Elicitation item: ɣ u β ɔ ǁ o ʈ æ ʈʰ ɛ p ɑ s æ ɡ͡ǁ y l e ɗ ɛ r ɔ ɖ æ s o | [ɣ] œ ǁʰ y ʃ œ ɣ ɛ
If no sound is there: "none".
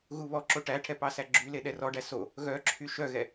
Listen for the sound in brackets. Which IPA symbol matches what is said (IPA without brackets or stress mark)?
ɣ